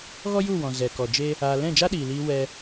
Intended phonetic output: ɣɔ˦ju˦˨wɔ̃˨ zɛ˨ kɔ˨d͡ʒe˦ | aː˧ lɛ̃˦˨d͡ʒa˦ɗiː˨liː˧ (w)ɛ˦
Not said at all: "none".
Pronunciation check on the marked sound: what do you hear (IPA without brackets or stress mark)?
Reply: w